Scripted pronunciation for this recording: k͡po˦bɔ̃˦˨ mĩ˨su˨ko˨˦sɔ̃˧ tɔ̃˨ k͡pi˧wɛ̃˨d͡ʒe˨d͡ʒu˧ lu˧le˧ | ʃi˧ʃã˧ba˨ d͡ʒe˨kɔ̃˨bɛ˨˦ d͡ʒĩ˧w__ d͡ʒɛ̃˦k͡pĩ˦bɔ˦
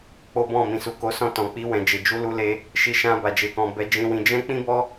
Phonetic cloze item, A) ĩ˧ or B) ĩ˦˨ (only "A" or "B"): A